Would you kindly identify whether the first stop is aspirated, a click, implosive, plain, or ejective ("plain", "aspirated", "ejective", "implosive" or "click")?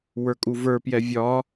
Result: ejective